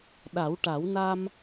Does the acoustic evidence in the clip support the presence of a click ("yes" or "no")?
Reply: no